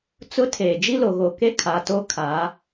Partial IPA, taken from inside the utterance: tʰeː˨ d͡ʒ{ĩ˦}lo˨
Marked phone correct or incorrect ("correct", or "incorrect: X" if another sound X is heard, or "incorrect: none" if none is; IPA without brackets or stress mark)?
incorrect: i˦